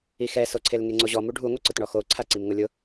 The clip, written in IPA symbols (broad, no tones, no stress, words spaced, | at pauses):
ixɛsoǀʰel ŋeŋ͡ǀoʑɔ muɖʱuŋʷɛ ǀʊtɳɔxoǀʰa ǀimŋʊlʲʊ